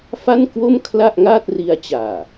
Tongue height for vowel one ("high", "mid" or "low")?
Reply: low